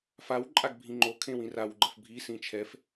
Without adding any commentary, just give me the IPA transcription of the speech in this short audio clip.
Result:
fawǃʼaɡ bʱĩŋ͡ǃokʰẽw ĩrawɡ͡ǃəf bʱisĩ t͡ʃʰɛf

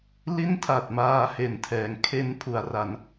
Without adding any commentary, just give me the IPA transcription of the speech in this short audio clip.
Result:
li˥˩ntʰa˨˩t̚ maː˧he˨˩ntʰɛː˩˦ŋ kʰe˧npʰu˩˦a̯ra˩˦n

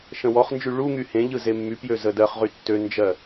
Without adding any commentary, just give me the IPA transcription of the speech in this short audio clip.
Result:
ʃə̃wɔχnd͡ʒy ɭu ŋyhẽʎɯ zemːypjø zədɜχʁy tːønd͡ʒɜ

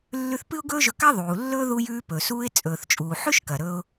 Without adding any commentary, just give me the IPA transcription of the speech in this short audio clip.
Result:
lːʉ˧θ pɨ˥ʊ̯ɡɵː˥ʒɵ˧ ka˥ ðˤuː˩lːɵː˥ ðu˧jʉː˧ pɵ˩suː˧ɪ̯ t͡sʼɵː˩θt͡ʃʼuː˩ ħʉ˥ʃkɐ˩ɾɵ˧ʊ̯

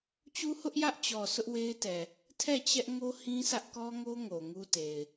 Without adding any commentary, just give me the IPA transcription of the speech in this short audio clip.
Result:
t͡ɕu˦hʊ˦ʔjä˦ʔt͡ɕɔ˨ sʊ˦ʔwe˦ɪ̯tɛ˨ | tʰɛ˦˨t͡ɕɛ˦ʔŋo˦ hĩ˦sä˦ʔkɔ˦ŋo˦ ŋo˨ŋu˦te˨ɪ̯

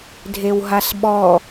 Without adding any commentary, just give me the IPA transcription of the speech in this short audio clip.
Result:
dʱewɦasɓɔ

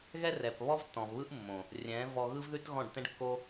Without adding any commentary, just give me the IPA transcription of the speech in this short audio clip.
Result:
ɣɛ˦rɛ˨p βɔ˦vtːɔ̃˨vβɯ˦ʔmːõ˨ | rʲɛ̃˨˦vɔ˧ɣɯ˦v ðʉ˦tɣɔ̃˦˨ɖtɛ̃˦ɖkːo˦

